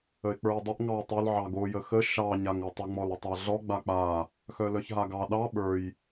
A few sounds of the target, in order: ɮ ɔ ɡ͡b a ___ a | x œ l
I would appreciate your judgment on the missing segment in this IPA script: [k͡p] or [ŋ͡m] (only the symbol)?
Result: k͡p